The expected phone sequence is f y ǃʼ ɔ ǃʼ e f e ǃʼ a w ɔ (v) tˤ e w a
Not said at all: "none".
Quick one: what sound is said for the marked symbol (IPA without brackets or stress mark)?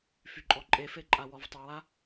v